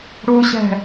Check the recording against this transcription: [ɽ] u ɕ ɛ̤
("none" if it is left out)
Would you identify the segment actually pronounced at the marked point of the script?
ɽ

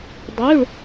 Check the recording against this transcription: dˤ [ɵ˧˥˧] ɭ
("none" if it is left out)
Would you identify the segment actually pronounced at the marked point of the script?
ø˧˥˧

